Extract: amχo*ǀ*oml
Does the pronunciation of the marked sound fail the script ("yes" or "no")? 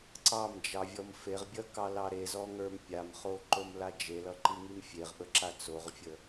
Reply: yes